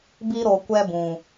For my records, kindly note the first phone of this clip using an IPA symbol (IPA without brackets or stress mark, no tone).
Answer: b